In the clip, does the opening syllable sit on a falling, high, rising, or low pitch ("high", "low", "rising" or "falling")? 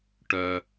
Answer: high